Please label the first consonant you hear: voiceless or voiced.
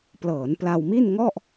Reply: voiceless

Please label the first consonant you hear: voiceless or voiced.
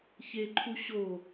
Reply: voiceless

